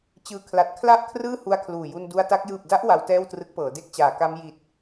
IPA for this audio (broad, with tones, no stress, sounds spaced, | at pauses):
t͡ɕ ɯː˨˩ kʰ l a˨˩ t̚ kʰ l a˦˥ ʔ kʰ r ɯː˥˩ h u˦˥ a̯ kʰ l uː˨˩ j u˧ n d u˧ a̯ t a˦˥ k̚ j ɯː˨˩ p̚ d a˦˥ ʔ w a˦˥ w t ɛː˥˩ w t r ɯ˦˥ k̚ p ɤː˩˦ d e˦˥ k̚ t͡ɕ aː˩˦ k a˦˥ m j i˨˩ t̚